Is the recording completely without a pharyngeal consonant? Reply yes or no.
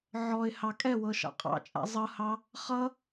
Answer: no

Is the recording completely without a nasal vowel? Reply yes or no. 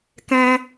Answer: no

